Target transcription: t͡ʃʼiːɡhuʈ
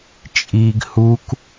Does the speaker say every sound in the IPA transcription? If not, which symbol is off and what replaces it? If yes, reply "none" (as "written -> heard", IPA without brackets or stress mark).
ʈ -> k